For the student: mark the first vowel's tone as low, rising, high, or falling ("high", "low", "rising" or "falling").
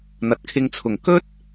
low